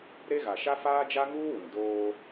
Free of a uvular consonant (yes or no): yes